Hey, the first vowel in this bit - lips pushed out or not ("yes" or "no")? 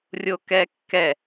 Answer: yes